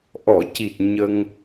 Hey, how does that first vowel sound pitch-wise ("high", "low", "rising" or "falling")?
low